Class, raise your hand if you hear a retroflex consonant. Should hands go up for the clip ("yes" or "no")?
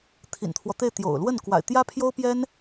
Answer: no